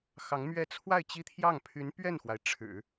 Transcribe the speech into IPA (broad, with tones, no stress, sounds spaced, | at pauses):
x ɑ˧˥ ŋ m ɥ ɛ˥˧ t͡sʰ w a˥˩ ɪ̯ t͡ɕ i˥ t̪ʰ j ɑ˥˩ ŋ pʰ y˧˥ n p ɥ ɛ˥˩ n x w a˩ ɪ̯ ʈ͡ʂʰ ɻ̩˨˩˦